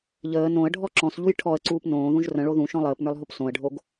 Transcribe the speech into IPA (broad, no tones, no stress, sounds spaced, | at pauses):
ʎ əː n õ ə̯ ɖʱ ɔ ǁ ɔ̃ s ʎ u j ʈʰ ɔ ə̯ ǀ uː p n õː ð ũ ʒ r ə̃ ɭ o ð ũ ʃ ɔ̃ lˠ əː p n ə˞ lˠ ɦ o p s õ ə̯ ɖʱ o ɡ